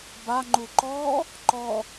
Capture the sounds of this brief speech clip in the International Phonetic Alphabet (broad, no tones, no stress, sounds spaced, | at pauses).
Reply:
b a ŋ͡ǃ u ǃ ɔ | ǃ ɔ